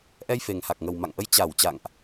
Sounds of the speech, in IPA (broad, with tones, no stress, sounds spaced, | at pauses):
ʔ ɛ˧ j f e˨˩ ŋ h a˨˩ k̚ ŋ ə˨˩ w m a̰˧˨ ŋ ʔ ə˧ j t͡ɕ a˧˩ w t͡ɕ a̰˧˨ ŋ ʔ